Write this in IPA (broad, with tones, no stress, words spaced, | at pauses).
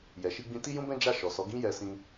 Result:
jɛ˨ʃi˧ɡ͡bĩ˧ ti˦jũ˦bɛ̃˦ d͡ʒa˦˨ʃɔ˨ sɔ˨˦ɡĩ˦jɛ˧sĩ˧